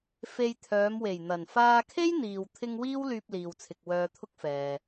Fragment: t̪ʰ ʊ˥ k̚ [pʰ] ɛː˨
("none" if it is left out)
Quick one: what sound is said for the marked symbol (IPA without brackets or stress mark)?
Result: f